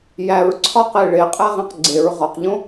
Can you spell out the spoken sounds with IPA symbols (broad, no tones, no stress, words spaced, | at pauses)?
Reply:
jæɹǀʰɒqe ɭeqʼæʁĩq ɡ͡ǀeɹ ʁɒqʎõ